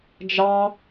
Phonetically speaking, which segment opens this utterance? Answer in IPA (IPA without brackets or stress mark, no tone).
d͡ʒ